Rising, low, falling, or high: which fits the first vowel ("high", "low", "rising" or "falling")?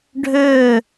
falling